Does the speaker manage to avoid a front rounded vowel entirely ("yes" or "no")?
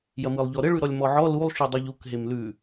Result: yes